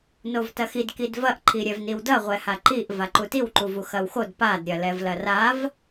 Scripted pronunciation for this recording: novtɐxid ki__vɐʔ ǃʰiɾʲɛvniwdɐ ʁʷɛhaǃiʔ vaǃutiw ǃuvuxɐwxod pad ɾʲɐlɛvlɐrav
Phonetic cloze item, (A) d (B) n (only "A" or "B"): A